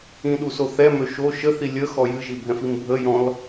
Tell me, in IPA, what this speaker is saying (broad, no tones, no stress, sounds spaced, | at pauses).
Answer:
ĩ ɗ u s o θ ɛ m ø ʃ o ʃ ə θ i lʲ ə x ɔ j ɨ ʒ i bʱ ɛ̃ f i m bʱ ə j ɔ̃ l